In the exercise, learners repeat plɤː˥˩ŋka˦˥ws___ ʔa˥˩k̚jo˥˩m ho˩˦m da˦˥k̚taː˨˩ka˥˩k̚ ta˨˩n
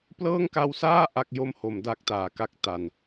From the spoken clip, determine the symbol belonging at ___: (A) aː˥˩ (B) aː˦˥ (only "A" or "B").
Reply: A